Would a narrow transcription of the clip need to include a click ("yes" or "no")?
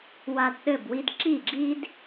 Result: yes